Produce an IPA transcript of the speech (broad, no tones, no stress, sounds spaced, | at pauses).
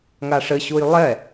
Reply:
ŋ a ʂ ɘ ɕ u j lˠ ɛ